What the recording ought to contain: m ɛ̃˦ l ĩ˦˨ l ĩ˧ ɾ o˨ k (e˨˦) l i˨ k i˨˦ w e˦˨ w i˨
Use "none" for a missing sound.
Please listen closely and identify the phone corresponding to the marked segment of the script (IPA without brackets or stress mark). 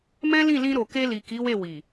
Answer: e˧